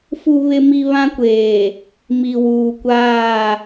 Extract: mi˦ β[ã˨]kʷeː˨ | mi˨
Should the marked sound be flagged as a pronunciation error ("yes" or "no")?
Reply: yes